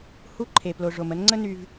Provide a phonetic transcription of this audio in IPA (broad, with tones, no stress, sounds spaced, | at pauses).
h u˦ ǃʰ e˨ p l o˨ ʐ o˨ m ə˦ n ŋ͡ǀ ə˦ n y˦ v